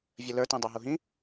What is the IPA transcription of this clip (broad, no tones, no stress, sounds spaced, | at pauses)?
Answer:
vʲ ə l ə˞ t ĩ dˤ œ ɦ u ɦ ĩ